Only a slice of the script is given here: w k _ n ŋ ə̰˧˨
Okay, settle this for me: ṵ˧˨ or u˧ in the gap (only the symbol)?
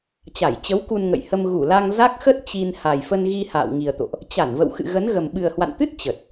u˧